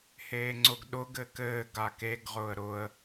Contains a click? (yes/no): yes